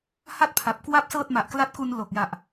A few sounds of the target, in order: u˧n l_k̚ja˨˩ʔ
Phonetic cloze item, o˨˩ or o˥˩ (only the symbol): o˨˩